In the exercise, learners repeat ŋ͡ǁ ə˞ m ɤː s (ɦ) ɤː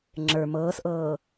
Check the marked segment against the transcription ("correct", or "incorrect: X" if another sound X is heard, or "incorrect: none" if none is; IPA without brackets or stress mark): incorrect: ʔ